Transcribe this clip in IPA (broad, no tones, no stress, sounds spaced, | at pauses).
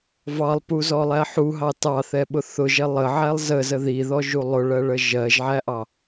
v ɑ lˠ p u z ɔ lˠ æ ħ u ɦ ɑ t ɑ θ ɛ ɓ ʊ θ ʊ ʒ ɛ lˠ ə ʕ æ lˠ z ə z ə ð i ð ɔ ʒ u lˠ ʊ ɭ ɜ ɭ ə ʒ ɜ ʒ ʕ æ ʔ ɑ